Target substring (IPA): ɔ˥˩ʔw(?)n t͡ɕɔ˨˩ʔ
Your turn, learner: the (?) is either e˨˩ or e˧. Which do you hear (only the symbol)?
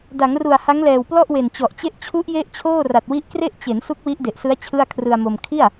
e˨˩